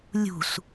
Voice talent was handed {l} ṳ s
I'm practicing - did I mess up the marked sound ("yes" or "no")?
yes